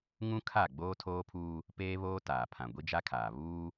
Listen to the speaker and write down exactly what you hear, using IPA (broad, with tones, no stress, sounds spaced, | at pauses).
ŋ ũ˦ kʰ a˦˨ ɡ͡b oː˦ tʰ oː˦ pʰ uː˦ | p eː˦ β oː˦ t aː˨ pʰ ã˨ ɡʷ i˦ d͡ʒ a˦ kʰ aː˨ β uː˦